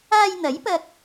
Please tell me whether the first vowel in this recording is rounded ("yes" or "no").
no